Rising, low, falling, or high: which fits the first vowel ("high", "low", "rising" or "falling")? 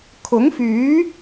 rising